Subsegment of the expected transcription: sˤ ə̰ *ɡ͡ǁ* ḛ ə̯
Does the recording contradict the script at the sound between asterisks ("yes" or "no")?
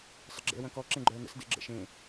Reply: no